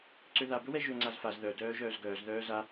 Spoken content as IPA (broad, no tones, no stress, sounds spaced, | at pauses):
ǀ ø ð a b ɵ w ɛ ʒ ø ŋ͡ǀ a z f a z ð œ d œː ʒ œː z ɡ œː z ð œː z a